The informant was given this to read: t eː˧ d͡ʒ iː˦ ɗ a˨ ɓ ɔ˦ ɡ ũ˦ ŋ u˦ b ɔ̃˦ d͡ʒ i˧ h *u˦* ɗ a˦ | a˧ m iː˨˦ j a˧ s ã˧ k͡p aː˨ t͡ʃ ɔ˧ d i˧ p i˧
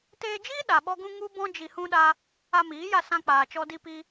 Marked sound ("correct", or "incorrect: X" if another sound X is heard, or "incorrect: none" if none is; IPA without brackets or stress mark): incorrect: ũ˦